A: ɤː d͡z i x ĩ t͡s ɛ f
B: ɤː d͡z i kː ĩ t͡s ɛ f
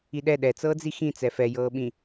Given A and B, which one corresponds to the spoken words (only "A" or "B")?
A